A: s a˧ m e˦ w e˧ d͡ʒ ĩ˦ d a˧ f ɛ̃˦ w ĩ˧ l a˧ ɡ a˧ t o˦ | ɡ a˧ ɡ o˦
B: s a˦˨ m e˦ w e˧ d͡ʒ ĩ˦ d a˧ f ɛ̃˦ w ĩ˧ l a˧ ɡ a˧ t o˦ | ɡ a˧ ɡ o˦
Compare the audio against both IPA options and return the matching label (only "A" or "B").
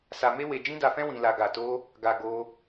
A